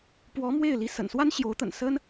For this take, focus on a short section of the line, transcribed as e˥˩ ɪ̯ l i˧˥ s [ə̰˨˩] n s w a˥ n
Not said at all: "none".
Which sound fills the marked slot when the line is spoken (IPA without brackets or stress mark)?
ə̰˨˩